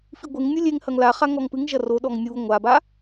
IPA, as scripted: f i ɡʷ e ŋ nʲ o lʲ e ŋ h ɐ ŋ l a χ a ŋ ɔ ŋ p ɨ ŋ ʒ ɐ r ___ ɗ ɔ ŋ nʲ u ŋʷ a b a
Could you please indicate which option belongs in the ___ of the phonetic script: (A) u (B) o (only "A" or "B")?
B